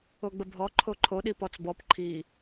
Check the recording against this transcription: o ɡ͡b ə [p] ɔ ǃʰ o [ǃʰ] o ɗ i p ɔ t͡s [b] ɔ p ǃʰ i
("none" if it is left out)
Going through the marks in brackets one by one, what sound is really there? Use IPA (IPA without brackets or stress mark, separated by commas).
bʱ, ǃʰ, b